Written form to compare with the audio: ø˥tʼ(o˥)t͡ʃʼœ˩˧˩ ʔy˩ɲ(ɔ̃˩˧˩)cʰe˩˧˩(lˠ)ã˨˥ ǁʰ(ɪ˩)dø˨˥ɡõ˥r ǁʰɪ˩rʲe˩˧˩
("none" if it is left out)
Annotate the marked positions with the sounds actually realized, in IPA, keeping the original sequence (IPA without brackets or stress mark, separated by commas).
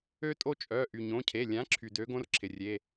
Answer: o˥, õ˩˧˩, lʲ, y˩